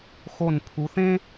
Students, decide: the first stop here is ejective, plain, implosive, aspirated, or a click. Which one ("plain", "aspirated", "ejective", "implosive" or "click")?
aspirated